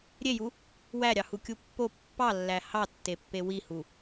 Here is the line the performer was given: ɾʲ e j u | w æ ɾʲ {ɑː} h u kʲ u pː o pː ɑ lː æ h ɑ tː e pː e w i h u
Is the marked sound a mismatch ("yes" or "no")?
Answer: yes